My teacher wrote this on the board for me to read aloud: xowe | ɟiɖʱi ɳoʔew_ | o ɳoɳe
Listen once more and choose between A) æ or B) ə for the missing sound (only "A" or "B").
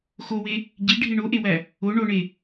A